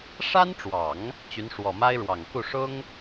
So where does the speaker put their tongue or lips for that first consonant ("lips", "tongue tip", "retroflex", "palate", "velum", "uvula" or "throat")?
retroflex